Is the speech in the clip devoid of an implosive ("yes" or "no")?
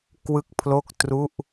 yes